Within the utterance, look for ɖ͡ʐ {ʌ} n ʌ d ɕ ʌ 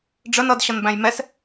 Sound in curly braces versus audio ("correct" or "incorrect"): incorrect